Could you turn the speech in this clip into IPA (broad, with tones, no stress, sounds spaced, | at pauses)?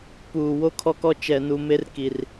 p uː˨ w o˦ kʰ ɔ˦ k ɔ˦ t͡ʃ ɛ˨ n u˨ m e˦ r k i˨ r